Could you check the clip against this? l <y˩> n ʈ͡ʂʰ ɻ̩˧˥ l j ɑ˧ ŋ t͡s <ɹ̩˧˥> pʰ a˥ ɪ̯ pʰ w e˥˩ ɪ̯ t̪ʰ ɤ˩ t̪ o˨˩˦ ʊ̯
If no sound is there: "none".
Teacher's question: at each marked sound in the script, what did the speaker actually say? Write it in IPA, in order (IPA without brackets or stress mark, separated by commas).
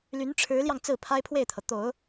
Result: y˧˥, ɹ̩˥˩